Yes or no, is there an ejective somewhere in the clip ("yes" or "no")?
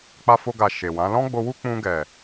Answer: no